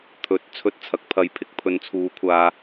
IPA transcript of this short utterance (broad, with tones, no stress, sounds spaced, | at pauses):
t̪ʰ ɵ˨˥ t̚ t͡sʰ ɵ˧ t̚ t͡sʰ ɐ˨ k̚ pʰ ɐ˨ j pʰ ɪ˧ k̚ pʰ ɵ˨˧ n t͡sʰ uː˨˥ kʷʰ aː˧